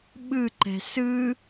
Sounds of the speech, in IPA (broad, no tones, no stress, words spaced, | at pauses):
ɓɯǃɛ̤ sɯ